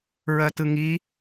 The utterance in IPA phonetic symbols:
ɹ ɜ t ɯ ŋ i

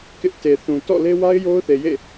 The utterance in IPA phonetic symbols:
k ɪ˦ ʔ t e˨ θ ũ˨ t ɔ̰˦˨ l e˦ w a˦ ɪ̯ j o˦ ʊ̯ θ e˨ j ḛ˦˨

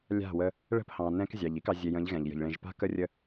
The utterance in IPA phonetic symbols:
lʲ a̤˦˨ w ə˦ | ɭ ə̤˦ p h ɑ̃˨ n ɛ̃˦ k zʲ ɑ˨ ʎ i˦ k ɑ˨ zʲ e˨ j ə̃˨˦ ʎ ɣ ɛ̃˨ ʎ j ə̤˨ ʎ ɭ ẽ˨ ʒ p a̤˦ k ə˦ rʲ ə˦

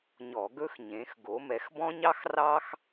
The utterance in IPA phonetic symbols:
ɲ ɔ˧˩˧ ɡ ɵ˥ x ɲ ẽ˨˦ x ɡ o˨˦ m ɛ˨˦ x b ɔ̃˥ ɲ ɑ˥ x r ɑ˥ x

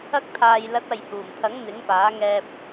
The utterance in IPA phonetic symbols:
ɐ˧ k̚ t̪ʰ aː˨ j l ɐ˨˥ t̚ ɐ˨ j h uː˨˩ m t̪ʰ ɐ˨˥ ŋ n̪ ɪ˨˥ ŋ p aː˨˥ ŋ ɛː˧ p̚

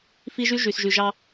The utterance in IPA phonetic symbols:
f i˦ ʒ y˦ ʒ y˨ s ʒ y˨ ʒ ɑ˦

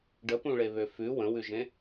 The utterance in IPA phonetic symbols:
ɖ ə p ũ ɭ e β ø f ʉ w ə̃ w ʉ ʒ ẽ

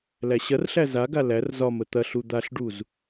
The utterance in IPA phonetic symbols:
l æ ɕ ɐ r ɬ æ z a ɡ a l æ r z ɒ m ə t̪ ɐ ɬ u d̪ a ɬ ɖ u z

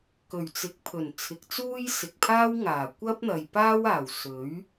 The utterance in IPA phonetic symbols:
k ɵ˨˩ ɥ t͡s ɪ˨˥ k̚ pʰ ɵ˨˩ n t͡sʰ ɪ˨˥ k̚ t͡s uː˥ j s ɪ˨ k̚ pʰ aː˥ w ŋ aː˨˩ kʷ ɐ˥ p̚ n̪ ɐ˨ j p aː˥ w aː˨˩ w s ɵ˨˥ ɥ

